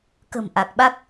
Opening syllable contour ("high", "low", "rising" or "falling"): low